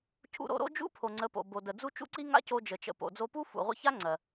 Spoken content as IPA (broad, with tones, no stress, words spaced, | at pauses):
cʰṵ˧ ɾo̰˧ɾo̰˦d͡ʒṵ˦ pʰo˨ŋ͡ǀə˨˦po̰˨bo˨ də˨d͡zu˦ t͡ʃṵ˦ǀi˦ŋa̰˦ co˧d͡ʒə˨t͡ʃə̰˨ po̰˨d͡zo˧pu˦ fṵ˨ ʁʷə̰˧ça˦ ŋ͡ǀɜ˨